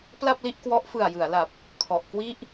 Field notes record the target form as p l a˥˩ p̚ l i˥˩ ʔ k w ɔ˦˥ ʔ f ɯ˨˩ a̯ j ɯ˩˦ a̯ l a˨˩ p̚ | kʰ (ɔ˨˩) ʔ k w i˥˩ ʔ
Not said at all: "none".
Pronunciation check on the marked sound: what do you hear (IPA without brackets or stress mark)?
ɔ˨˩